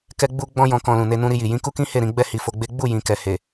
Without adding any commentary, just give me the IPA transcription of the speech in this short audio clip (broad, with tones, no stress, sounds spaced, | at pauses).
k ɛ˧ ɡ͡b u˧ ɡ͡b ɔ̃˦ j ɔ̃˧ k ɔ̃˧ l ũ˨ n e˧ n ũ˧ ɾ i˧ j i˨ j ĩ˨˦ k u˦ k ĩ˦ h e˦˨ ɾ ĩ˧ ɡ͡b ɛ˦ h i˧ f o˧ ɡ͡b e˦ ɡ͡b u˦˨ j ĩ˨ k ɛ˨ h e˨